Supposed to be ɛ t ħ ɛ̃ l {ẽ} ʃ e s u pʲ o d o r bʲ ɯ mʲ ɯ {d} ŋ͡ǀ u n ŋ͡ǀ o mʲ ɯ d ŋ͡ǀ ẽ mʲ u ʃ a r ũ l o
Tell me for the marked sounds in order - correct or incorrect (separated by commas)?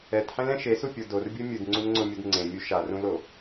incorrect, correct